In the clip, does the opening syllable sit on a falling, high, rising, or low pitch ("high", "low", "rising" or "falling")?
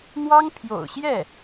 high